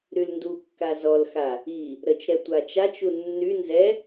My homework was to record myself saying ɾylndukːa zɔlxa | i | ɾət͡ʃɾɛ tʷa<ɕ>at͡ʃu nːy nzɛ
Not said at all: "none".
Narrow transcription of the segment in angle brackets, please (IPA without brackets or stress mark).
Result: t͡ʃ